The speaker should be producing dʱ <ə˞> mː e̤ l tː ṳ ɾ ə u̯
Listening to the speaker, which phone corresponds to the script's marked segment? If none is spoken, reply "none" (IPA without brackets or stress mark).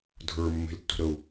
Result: ə˞